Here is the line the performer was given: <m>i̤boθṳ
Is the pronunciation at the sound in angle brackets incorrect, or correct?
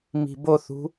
correct